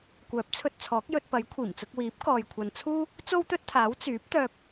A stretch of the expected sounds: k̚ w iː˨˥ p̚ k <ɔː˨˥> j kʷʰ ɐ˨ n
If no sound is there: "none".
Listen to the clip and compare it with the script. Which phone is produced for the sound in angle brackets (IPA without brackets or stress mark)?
ɔː˨